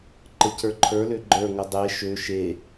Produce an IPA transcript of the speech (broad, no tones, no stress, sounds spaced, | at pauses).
ǃ ə c ə˞ ǃʰ ə˞ l ø ɡ͡ǃ ə˞ ŋ ə dˤ e ʃ ø ʃ e